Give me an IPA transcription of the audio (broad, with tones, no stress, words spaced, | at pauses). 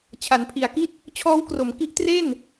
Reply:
t͡ɕʰa˩˦npʰi˩˦a̯ki˥˩t̚ | t͡ɕʰɔː˦˥wkro˩˦m ki˦˥ʔtre˥˩n